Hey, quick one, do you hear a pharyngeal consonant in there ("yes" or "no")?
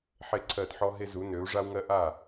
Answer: yes